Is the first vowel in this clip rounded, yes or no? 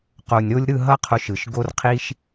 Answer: yes